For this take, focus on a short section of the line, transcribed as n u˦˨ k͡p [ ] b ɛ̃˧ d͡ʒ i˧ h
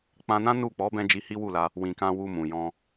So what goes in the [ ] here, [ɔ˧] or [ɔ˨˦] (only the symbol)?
ɔ˨˦